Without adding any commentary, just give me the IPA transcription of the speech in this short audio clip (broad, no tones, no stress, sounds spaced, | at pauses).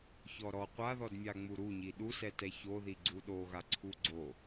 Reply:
ç ɔ ɾ ɔ qʷ a ð ɔ d mʲ a ŋ͡m u ɾ u ɲ i ɗ u s ɛ t ɛ ç o ð i ɡ͡ǀ u ɗ o ɣ a ǀʰ u ɡ͡ǀ o